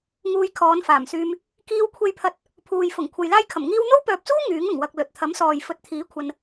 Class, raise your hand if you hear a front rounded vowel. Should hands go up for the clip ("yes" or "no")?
yes